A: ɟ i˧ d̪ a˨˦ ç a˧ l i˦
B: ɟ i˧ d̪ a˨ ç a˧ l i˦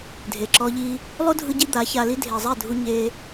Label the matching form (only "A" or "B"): A